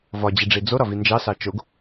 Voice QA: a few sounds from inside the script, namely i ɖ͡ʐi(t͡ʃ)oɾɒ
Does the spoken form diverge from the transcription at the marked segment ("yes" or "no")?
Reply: yes